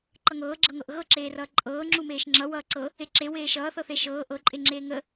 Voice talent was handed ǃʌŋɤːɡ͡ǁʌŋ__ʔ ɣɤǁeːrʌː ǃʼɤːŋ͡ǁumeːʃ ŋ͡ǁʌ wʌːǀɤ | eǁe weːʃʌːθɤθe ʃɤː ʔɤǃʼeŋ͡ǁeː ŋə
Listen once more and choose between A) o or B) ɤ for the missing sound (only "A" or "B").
B